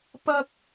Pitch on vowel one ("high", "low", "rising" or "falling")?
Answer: high